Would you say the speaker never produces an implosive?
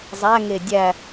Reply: yes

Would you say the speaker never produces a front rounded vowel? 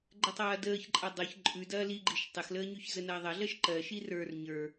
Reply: yes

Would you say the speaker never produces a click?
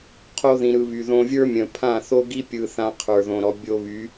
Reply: yes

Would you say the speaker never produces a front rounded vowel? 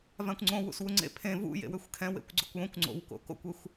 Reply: no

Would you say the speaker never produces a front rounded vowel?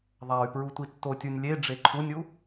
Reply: no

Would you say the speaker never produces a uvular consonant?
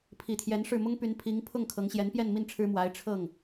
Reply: yes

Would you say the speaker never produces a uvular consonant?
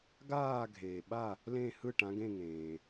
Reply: yes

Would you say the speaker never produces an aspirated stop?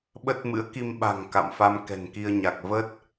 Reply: yes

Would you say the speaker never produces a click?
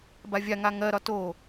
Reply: yes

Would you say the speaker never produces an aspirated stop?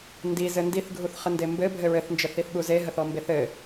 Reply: yes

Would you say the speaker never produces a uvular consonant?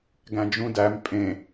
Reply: yes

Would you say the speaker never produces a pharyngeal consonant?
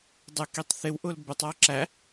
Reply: yes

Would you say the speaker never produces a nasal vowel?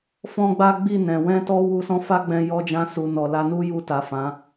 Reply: no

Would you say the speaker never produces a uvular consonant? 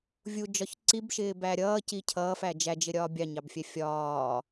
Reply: yes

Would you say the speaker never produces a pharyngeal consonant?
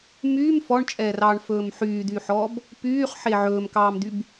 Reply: no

